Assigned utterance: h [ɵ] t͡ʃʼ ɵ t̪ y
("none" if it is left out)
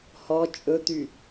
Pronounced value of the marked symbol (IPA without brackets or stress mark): ɔ